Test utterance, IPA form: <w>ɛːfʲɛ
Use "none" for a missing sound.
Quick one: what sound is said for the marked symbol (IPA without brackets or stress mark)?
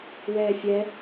w